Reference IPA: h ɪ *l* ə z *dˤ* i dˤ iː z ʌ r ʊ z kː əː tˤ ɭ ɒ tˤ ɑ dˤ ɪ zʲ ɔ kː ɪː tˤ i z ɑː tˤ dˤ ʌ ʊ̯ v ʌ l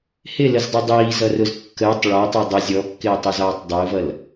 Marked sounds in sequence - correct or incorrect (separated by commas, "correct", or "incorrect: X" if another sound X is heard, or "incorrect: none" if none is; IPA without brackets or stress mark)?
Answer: correct, correct